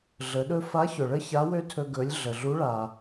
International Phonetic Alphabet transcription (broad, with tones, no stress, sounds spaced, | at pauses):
ɮ ə˩˧ ɗ ɵ˥ f a˧˥ ç ɵ˩ ɭ ə˥ ç a˧˥ w ø˥ tʰ ɵ˧ ɡ ɵ˩˧ lʲ ɮ ə˩ ɮ u˧˥ ɭ a˩